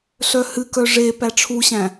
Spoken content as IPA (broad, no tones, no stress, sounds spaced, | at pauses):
ɬ œ h ɨ k œ ʐ e p æ ʈ͡ʂʰ u ɕ æ̃